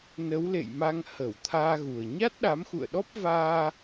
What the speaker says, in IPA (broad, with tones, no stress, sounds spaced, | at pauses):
n ə˨˦ w l ḛ˧˨ j m a˧ ŋ h ə˧˩ w t̪ʰ aː˧ ɣ u˨˩ ə̯ ɲ a˦˥ t̚ ɗ a˨˦ m x ṵ˧˨ ə̯ ɗ ɔ˦˥ p̚ v aː˧